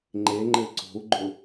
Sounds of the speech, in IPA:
ŋ͡ǃeŋ͡ǃɘ ǀo̤u̯ɡ͡ǃʊ

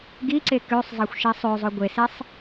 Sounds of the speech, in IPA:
ɡiǀe køsˤzˤɑxʷʃi sˤøzˤo ɡʷesesˤ

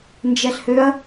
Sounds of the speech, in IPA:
nd͡ʒɛɬhøɐ̯

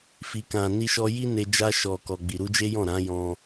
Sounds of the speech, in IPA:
fi˨kã˨ ni˧ʃɔ˧ji˦ne˧ d͡ʒa˧ʃɔ˨kɔ˨ ɡ͡bi˨ɾu˧d͡ʒe˦jɔ̃˦˨ ɾã˨˦jɔ̃˧

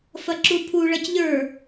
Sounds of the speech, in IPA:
fɐǁupʰuɭɐc ʎə˞

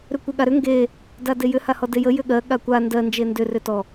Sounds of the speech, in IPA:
ɾʏkʷeɠaɾʏ ŋɡe | dadejʏ hahɔdejə jʏɠɜ ɠakʷa ndɜ nd͡ʒendʏ rʏtɔ

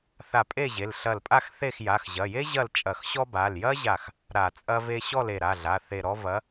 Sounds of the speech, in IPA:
θa˧˩pʼe˥˨ ʑe˩˧˩lɬɐ˧˩lpʼa˥˨xθe˥˨x ja˩˧˩xʑɐ˩˧˩je˥ ʑɐ˥˨lt͡ʃʼɐ˧˩xɕɔ˥ ba˩˧˩ljɐ˥ʑa˧˩x | ɾa˧˩˧t͡sʼɐ˥ve˥ ɕɔ˥˨le˧˩ɾa˩˧˩ɮa˩˧˩ θe˧˩ɾɔ˥ vɐ˨˥

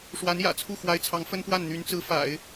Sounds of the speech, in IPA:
ʂwa˧˥njä̰˨˩t͡sʰu˥˩ xwa˧˥ɪ̯t͡sʰɑ˧˥ŋfə˥npwa˥˩n n̪y˧˥nt͡sɹ̩˧˥ fa̰˨˩˦ɪ̯

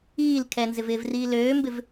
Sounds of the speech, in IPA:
iːl kʰɛnzɪvɪːvriː løːmbɪv

